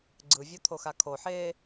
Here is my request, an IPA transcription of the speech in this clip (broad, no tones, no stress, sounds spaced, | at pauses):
ɡ͡ǀ ɯ vʲ o t̪ʰ o x a kʰ o ħ eː